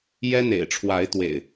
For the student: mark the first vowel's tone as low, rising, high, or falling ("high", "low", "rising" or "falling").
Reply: high